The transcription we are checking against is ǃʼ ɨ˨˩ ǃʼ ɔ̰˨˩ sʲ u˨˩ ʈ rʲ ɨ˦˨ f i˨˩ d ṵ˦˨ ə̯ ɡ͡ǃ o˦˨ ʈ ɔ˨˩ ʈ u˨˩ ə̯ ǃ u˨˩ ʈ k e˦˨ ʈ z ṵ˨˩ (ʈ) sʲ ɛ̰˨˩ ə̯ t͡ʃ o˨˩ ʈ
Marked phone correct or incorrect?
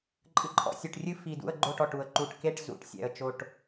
correct